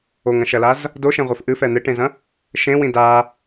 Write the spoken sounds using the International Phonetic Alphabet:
oŋɐ̃ʃɐlaz | doʃẽʁʷef ʔɨfɛ n̪eʈẽzɐ̃ | ʃẽwĩ da

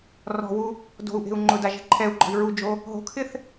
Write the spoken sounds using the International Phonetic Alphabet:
rɔ̤wu | do̤u̯ʔe̤u̯ ŋ͡ǃʊda ʒe̤ǃʰɛu̯ɡ͡ǃɔ̤i̯ ɹud͡ʒo | ɦo̤kʰɪθ

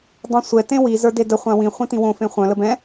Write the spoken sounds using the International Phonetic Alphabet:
dˤĩsʷɛ tẽwi zə˞dedə χʷãwĩ χʷĩtĩwõ fẽχʷœ̃ ləbɛ̃

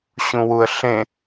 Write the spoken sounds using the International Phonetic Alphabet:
ɕũwuə̯ɬẽ

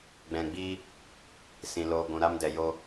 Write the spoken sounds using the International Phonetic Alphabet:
ɡ͡bɛ̃˨ɡ͡biː˧ | sĩ˨loː˧ ɡʷũ˨ɾaː˧mdɛ˨ jo˧

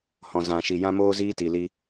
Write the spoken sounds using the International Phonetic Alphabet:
hɔ̃˨zã˨ʃi˨ jã˦moː˦ ziː˦ti˨li˧

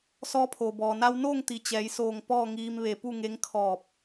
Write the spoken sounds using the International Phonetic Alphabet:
sɔː˧˥pʰoː˩ bɔː˩na˧wnoː˥˨ŋt̪i˩˧ t͡ɕɛː˩˧jsoː˧˩ŋ pɔː˥˨ŋiː˧m ʋe˧˩pu˥˨ŋe˧˥ŋ kʰɔː˧˩p̚

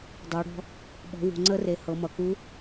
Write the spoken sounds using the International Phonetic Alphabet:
dˤo˩˧ɽɔ̤˧ | ɓɔ̤˩˧wṳ˩ŋ͡ǀə˧˥re˩ hɤ˩˧mʌ˩ku˧˥

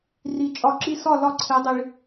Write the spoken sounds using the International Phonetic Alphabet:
ri˨ t͡ʃʼɒ˨˦ǁi˧sɒ˦˨ lɒ˦˨ǀʰe˨˦dˤi˨ɭ

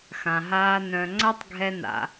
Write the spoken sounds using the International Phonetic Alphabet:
xã˩ɦaː˨ nœ̃˨ŋ͡ǀa˦tˤ ɡʱɛ˨na̰˩

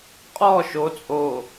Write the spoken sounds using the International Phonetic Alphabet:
qʼɔ ʃo t͡sʼo

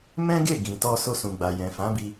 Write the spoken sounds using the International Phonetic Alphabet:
mɛ̃˦ɡe˦˨ ɡĩ˨tɔ˧ so˧sũ˨ɡ͡ba˨ jɛ̃˨fã˨˦bi˧

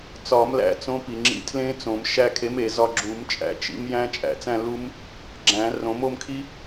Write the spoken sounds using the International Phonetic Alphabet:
t͡sɒ˨˩˦mlæ̰˨˥ t͡sõ˨˥pi˩ ŋ͡ǁḭ˨˥tʰlẽ˦˥t͡sõ˨˩˦m ʃæ˧kʰe˨˥me˩zɒ˧ ɡ͡ǁu˨˩˦mt͡ʃʼæ̰˧t͡ʃḭ˨˥mjæ̃˦˥ t͡ʃʼæ̰˨˩˦t͡sæ̃˥˧lu˦˥m | ɡ͡ǁæ̃˨˩˦rõ˨˩˦mo˥˧mkʰi˦˥

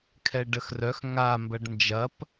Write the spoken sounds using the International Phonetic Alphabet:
kʰɛɖəxrœx ŋa mbɐɖnd͡ʒɐp

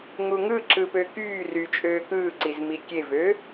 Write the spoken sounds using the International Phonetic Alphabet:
ŋuŋɯǁɯ pøkyːry t͡ʃʼøːkɯːǀiz mikʲevø

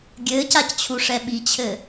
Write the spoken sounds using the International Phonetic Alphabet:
ɡʲɘːcact͡ɕʰuʂɛ ɓit͡ɕʰɘ

